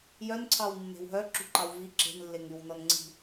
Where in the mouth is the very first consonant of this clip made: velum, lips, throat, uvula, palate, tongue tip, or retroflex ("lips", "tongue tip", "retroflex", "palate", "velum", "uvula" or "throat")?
palate